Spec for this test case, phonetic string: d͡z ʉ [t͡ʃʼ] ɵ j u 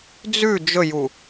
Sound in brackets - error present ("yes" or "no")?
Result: yes